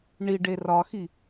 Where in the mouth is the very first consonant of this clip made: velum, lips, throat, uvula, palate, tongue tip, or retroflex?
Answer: retroflex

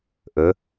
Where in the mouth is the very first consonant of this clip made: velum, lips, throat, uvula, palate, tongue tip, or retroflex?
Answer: throat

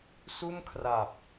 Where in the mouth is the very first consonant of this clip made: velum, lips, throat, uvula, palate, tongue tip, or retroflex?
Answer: tongue tip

